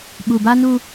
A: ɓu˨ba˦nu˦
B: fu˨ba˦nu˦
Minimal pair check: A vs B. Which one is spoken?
A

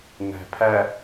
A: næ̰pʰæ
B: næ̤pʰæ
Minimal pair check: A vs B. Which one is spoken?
B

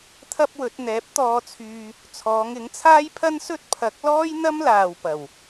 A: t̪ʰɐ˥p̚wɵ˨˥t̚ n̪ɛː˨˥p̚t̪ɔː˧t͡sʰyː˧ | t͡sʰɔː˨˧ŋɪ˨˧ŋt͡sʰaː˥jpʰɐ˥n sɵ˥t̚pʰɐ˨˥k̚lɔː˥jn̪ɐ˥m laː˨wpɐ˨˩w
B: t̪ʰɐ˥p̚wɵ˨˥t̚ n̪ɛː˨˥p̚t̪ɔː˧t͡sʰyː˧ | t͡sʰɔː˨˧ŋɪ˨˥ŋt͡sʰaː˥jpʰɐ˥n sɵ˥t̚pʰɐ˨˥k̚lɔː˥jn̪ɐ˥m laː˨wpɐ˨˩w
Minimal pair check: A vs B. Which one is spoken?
B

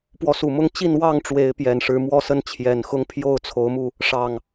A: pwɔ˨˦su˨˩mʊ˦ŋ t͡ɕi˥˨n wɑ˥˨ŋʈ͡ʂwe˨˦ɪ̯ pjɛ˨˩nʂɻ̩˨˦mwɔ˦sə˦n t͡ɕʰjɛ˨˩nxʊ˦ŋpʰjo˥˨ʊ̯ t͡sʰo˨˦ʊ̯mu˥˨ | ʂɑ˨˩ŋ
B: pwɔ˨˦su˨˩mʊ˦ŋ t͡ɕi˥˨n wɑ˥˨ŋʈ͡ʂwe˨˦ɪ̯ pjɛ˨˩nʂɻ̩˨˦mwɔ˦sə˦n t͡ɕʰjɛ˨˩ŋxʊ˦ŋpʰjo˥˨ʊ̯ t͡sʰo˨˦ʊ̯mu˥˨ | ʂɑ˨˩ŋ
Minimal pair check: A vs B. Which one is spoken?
A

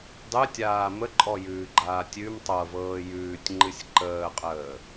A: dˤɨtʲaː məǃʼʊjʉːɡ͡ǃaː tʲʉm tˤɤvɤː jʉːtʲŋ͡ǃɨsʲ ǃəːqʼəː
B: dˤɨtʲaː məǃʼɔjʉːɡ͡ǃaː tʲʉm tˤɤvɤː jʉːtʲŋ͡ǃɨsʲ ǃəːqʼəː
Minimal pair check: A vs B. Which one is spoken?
B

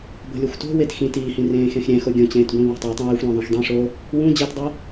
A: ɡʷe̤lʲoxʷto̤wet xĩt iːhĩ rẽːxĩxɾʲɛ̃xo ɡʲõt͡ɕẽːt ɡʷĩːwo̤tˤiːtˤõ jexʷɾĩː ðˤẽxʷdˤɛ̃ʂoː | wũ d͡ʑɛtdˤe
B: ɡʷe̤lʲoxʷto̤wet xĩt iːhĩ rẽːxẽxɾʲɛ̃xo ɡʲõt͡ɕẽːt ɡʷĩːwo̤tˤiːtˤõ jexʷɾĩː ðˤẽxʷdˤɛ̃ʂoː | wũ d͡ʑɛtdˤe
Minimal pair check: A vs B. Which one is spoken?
B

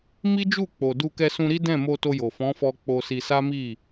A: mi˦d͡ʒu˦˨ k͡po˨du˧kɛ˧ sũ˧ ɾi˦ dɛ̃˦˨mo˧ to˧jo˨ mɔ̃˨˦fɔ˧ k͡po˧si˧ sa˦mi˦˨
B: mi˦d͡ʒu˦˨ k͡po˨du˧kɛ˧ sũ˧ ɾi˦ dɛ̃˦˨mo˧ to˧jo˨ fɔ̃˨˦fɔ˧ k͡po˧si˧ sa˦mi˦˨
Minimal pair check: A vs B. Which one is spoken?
B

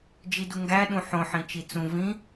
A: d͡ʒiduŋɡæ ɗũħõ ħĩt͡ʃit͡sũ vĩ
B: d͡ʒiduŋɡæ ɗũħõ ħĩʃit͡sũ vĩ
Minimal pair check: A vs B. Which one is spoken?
A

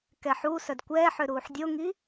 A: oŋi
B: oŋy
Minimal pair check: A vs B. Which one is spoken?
A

